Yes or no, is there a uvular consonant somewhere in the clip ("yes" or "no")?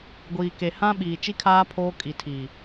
no